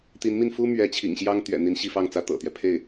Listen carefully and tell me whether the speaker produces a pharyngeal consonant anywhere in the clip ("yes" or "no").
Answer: no